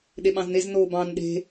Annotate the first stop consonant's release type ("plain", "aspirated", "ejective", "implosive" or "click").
implosive